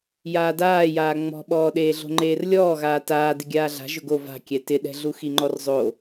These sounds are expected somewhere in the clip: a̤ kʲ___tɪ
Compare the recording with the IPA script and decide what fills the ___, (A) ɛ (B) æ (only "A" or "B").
A